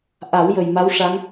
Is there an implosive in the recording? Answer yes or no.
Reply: no